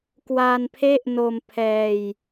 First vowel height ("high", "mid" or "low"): low